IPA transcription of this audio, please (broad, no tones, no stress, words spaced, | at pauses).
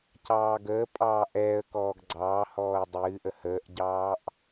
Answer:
cɑːɡəː pʼɑːʔɛːə̯kɔːɡ ɡ͡ǀɑːhɔːə̯ dˤɨːʔə həːʔɟɑːʔ